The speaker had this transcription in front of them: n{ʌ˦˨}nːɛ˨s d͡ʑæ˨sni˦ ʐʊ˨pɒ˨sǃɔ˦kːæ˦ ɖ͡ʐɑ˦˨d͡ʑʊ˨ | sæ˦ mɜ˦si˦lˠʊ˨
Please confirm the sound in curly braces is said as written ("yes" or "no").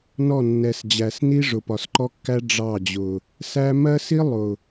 no